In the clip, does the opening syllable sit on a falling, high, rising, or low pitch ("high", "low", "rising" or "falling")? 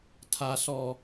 low